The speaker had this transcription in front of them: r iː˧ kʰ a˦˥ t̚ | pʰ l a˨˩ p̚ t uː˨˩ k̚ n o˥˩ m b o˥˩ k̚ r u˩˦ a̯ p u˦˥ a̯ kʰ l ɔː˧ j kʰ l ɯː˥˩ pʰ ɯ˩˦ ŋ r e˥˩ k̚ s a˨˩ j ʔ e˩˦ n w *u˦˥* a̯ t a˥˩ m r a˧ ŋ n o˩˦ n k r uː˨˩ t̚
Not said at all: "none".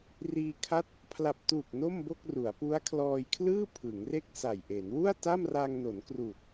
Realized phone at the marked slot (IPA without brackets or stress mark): u˥˩